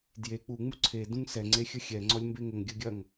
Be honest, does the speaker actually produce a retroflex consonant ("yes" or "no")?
no